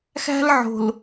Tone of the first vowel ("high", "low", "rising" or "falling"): high